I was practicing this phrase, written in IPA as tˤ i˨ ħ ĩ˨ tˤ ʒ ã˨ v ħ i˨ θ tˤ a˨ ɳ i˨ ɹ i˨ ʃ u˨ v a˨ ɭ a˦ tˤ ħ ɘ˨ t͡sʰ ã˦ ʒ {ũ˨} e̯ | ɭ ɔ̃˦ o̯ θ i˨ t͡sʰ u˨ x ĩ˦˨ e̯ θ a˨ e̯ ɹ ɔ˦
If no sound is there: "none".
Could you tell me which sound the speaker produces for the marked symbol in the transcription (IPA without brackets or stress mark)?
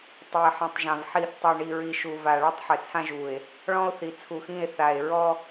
u˨